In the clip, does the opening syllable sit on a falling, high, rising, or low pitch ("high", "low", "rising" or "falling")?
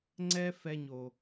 high